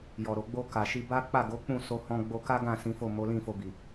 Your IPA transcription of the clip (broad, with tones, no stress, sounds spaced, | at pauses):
j ɔ˨ ɾ o˨ ɡ͡b o˧ k a˨ ʃ i˧ b a˦ k͡p a˦˨ ɡ o˨˦ k͡p ũ˦˨ s o˧ h ɔ̃˧ ɡ͡b o˧ k a˦ ɡ ã˦˨ s ĩ˨˦ f o˦˨ m o˨˦ l ĩ˦˨ f o˧ b i˨